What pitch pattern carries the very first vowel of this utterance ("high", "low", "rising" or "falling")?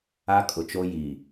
high